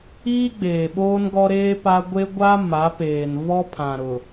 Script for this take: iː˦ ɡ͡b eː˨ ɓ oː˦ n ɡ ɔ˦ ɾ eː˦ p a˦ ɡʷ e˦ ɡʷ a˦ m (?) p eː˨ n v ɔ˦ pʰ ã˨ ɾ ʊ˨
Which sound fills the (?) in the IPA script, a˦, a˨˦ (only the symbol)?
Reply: a˨˦